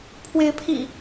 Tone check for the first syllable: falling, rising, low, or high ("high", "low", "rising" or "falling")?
rising